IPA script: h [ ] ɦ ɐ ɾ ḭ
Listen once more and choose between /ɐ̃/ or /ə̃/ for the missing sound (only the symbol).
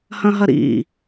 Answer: ɐ̃